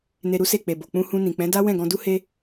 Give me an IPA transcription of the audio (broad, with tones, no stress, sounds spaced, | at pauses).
n e˧ ɾ u˦ s e˦˨ k͡p e˨ b o˨ k͡p ũ˧ h ũ˧ n ĩ˨ k͡p ɛ̃˨˦ d a˦ w ɛ̃˦˨ ɡ ɔ̃˧ d u˦ h e˦